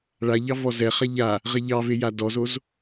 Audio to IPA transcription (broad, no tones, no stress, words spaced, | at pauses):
ɭaʎɑ vɔzɛχa ʎa | ʁɛʎɑve jadɔzoz